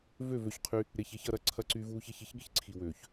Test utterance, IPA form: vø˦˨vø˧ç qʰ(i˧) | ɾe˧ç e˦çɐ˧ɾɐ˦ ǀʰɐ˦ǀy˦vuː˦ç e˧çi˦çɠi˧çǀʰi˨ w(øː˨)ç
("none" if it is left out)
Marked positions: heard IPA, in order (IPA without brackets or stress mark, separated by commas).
y˧, øː˨